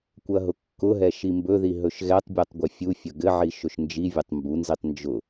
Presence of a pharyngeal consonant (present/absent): present